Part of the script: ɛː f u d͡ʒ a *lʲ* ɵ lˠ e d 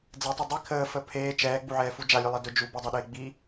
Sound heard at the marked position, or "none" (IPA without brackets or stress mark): lʲ